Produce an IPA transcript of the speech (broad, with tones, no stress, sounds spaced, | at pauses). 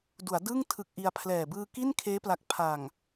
d u˩˦ a̯ d ɯː˥˩ ŋ tʰ ɯ˦˥ k̚ ʔ i˧ a̯ pʰ l ɛː˨˩ b ɯː˧ k i˥˩ n kʰ eː˦˥ p l a˨˩ k̚ pʰ a˨˩ ŋ